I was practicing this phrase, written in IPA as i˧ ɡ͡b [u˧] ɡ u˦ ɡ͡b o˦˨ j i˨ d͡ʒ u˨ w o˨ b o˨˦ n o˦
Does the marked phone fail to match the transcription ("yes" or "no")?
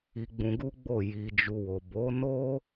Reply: yes